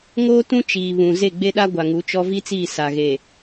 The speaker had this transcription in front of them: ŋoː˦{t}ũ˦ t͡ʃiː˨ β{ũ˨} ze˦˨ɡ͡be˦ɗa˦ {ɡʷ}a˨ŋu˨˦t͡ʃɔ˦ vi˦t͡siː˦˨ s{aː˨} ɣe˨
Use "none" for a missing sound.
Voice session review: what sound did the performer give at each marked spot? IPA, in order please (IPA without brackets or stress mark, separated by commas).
t, ũ˨, ɡʷ, a˨